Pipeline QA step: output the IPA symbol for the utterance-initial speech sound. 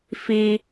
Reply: f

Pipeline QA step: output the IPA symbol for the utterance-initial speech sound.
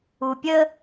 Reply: u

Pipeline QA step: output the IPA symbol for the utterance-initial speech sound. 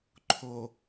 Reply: ǃʰ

